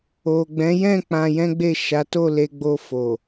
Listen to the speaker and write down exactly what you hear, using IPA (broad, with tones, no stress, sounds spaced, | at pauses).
o˨ ɡ͡b ɛ̃˨˦ j ɛ̃˦˨ k͡p ã˧ j ɛ̃˦ ɡ͡b e˦˨ ʃ a˨˦ t o˦˨ l e˧ ɡ͡b o˧ f o˨